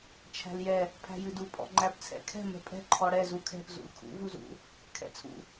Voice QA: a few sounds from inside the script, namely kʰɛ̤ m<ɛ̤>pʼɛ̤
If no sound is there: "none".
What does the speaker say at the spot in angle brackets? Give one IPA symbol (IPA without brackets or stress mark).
ɛ̤